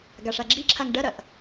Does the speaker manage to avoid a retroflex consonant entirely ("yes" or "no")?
no